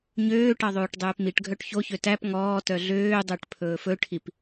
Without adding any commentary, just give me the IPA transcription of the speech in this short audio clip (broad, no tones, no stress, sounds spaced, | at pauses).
ɲ øː ʈ ɑ ðˤ oː ʈ dˤ ɵː p m i ʈ ɡʱ œ ʈ ç o ç ø t æ p ŋ ɔː t œ ɮ øː dˤ œ ʈ pʰ ɵː f ɵ ʈʰ i p